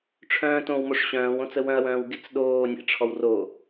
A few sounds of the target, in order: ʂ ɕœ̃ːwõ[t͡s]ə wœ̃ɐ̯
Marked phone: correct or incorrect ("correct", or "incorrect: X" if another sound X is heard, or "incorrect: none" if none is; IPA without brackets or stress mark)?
correct